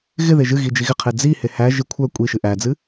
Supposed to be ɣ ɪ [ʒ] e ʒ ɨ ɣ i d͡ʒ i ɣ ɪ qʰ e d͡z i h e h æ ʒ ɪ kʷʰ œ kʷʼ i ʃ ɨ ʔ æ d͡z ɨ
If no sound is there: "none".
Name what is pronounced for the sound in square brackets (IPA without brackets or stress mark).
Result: ð